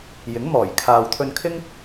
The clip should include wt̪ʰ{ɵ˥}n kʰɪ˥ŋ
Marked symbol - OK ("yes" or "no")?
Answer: no